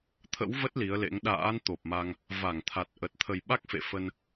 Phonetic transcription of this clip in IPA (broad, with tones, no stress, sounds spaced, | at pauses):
t̪ʰ ə̰˧˥ w v ə˦˥ t̚ l i˨˦ ə̯ l ḛ˧˥ ŋ ɗ a̰ː˧˥ n t̪ o˨˩ p̚ m a˧ ŋ | v a˧˩ ŋ t̪ʰ a˨˩ t̚ ʔ ə˨˩ t̚ t̪ʰ ə˨˩ j ɓ a˦˥ k̚ f ḛ˧˨ f ə˧ n